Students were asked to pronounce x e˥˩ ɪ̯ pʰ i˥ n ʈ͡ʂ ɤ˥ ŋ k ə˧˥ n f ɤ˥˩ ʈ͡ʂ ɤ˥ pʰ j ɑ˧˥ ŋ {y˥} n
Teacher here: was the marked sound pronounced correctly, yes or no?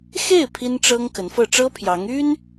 yes